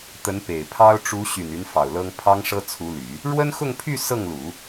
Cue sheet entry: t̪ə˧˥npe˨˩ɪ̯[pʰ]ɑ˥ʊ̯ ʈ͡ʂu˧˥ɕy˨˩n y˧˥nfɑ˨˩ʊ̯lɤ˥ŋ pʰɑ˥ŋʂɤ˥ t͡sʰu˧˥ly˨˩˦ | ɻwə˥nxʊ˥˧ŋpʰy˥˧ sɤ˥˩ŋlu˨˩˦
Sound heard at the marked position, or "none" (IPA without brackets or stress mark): pʰ